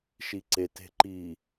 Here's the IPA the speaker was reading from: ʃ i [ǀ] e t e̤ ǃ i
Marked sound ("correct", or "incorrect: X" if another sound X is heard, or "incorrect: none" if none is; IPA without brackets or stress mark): correct